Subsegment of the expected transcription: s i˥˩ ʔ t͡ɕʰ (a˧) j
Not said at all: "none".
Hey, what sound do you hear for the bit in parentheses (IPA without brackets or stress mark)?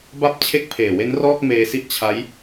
a˦˥